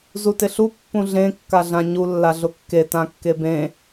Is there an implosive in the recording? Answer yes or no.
no